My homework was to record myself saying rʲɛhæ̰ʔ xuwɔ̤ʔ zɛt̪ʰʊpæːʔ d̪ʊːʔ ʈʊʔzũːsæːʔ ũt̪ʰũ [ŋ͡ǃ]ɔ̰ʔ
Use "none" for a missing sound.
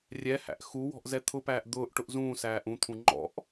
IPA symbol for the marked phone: ŋ͡ǃ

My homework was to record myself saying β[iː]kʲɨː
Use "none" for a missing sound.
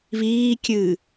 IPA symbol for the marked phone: iː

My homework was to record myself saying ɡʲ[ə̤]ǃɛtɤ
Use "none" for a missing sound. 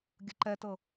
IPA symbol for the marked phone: ə̤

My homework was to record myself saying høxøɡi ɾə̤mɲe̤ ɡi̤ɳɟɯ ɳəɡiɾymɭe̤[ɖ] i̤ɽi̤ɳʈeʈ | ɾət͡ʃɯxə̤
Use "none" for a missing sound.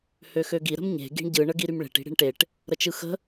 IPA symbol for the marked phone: ʈ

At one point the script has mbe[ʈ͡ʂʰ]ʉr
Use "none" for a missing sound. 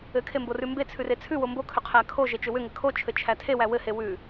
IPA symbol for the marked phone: t͡sʰ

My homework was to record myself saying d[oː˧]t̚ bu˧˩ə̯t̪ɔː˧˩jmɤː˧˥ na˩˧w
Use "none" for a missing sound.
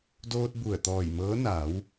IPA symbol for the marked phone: oː˧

